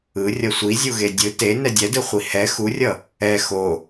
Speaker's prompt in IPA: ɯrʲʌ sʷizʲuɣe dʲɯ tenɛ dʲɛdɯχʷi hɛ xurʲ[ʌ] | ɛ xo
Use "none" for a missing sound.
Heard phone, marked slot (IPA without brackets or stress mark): ʌ